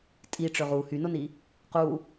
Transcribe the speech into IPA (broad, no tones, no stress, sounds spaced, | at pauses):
tʼ i ʈ͡ʂ ø ʁ u h y n o n i | q u